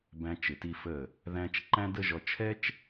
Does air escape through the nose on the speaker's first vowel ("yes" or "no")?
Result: yes